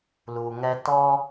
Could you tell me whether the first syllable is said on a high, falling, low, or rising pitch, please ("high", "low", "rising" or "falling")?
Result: low